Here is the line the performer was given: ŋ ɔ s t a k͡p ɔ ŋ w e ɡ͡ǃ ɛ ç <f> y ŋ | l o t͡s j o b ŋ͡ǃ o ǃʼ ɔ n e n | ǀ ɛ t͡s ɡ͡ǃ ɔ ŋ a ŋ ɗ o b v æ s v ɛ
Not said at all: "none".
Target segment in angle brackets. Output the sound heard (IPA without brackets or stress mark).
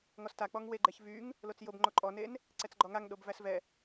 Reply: v